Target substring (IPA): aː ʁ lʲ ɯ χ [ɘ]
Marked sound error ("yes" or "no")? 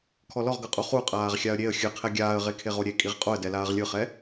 yes